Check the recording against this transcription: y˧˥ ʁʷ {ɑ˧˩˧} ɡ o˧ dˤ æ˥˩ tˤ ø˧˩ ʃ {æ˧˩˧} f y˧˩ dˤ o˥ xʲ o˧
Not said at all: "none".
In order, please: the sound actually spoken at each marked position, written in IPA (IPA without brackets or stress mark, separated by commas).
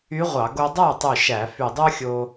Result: ɑ˧˩˧, æ˧˩˧